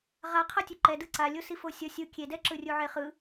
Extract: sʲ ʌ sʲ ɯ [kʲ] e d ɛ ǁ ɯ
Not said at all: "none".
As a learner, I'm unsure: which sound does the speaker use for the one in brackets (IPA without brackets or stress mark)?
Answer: kʲ